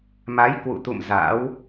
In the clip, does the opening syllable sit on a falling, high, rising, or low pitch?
rising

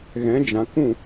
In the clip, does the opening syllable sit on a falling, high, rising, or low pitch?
rising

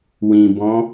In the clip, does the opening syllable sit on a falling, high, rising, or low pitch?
low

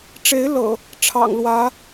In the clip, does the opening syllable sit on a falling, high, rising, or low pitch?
rising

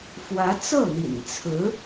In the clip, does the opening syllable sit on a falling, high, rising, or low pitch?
rising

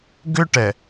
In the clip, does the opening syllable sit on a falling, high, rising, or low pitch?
high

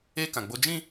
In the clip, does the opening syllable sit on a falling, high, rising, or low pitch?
high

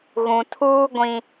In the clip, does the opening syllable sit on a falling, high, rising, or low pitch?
low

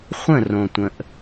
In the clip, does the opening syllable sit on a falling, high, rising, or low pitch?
falling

